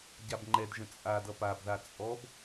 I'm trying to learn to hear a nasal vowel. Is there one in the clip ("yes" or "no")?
yes